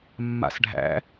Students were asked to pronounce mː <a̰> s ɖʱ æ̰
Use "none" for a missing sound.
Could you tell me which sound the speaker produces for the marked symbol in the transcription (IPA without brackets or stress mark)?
a̰